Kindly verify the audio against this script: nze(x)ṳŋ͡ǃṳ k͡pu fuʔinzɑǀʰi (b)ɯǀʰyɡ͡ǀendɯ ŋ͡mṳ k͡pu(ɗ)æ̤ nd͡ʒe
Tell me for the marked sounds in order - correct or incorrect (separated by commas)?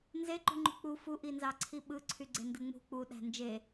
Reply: incorrect, incorrect, correct